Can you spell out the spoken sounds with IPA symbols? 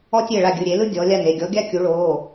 ɔ˦ tʲ e˦˨ ɭ a˦˨ ɡʲ ɯ˩˧˩ ɾʲ e˩˧ l ɯ˦ dʲ ɔ˩˧ lʲ a˦˨ n e˦˨ ɡʲ ɔ˨˥ ɡʲ a˦ kʲ u˩˧ ɭ oː˩˧˩

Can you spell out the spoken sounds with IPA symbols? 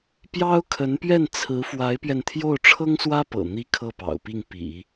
p j ɑ˥ ʊ̯ kʰ ə˧˥ n p ɥ ɛ˥˩ n t͡sʰ ɹ̩˧˥ f w a˧˥ ɪ̯ p ɥ ɛ˧ n t̪ʰ j o˥˩ ʊ̯ ʈ͡ʂʰ ɤ˥ ŋ s w ä˥ p ɤ̰˨˩ n̪ i˥ kʰ ɤ˥˩ p ɑ̰˨˩ ʊ̯ p i˥˩ ŋ p ḭ˨˩˦

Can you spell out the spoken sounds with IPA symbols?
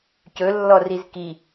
c ɵ lː ɔ r i z k i

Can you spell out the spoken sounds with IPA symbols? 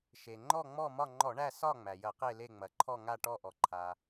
ʃ e˩ ŋ͡ǃ ɔ˦˨ ŋ͡m ɔ˦˨ m ɒ˦˨ ŋ͡ǃ ɔ˧˩˧ ɳ æ˦˨ s ɒ˦˨ ŋ͡m æ˩ j ɐ˧˩˧ q e˦˨ l e˦˨ ŋ͡m ɐ˩ ǃʰ ɔ˦˨ ŋ a˦˨ ʈ ɔ˦˨ ʔ ɔ˩ ǃʰ a˩

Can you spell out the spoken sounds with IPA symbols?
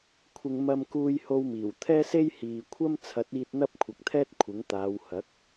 kʷʰ ɪ˨ ŋ m ɐ˧ m k uː˧ j h o˧ w m iː˨˩ w t̪ʰ ɛː˥ s e˥ j h iː˨ kʷʰ ɐ˥ m t͡sʰ ɐ˨˥ t̚ iː˧ t̚ n̪ ɐ˥ p̚ kʷʰ ɐ˨˥ k̚ t̪ʰ ɛː˥ t̚ kʷʰ ɪ˨˥ ŋ t̪ aː˨˧ w h ɐ˨˥ k̚

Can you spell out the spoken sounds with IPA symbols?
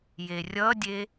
j e rʲ ʌ dʲ e

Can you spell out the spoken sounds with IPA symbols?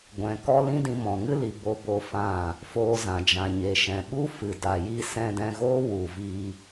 ɡʷ ɛ̃˨ k ɔ˦ l ĩ˦ d ĩ˧ m ɔ̃˨ ŋ ɨ˦ l i˨ b o˦ b o˦ f ã˦˨ | f oː˧ z ã˨ d͡ʒ ã˨ ɲ e˨ ʃ ɛ̃˨ ɓ u˦ f ɨ˨ d a˨ j i˧ s ɛ̃˧ d ɛ̃˧ ɣ oː˦ w u˨ v i˧

